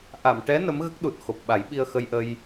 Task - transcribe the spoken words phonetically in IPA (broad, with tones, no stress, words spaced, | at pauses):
ʔa˨˩˨m ʈɛ˧˥ nə˧˥mɣə˦˥k̚ɗu˨˩t̚xo˨˩p̚ ɓa˨˩˦jɓi˧ə̯xə˧jʔə˧j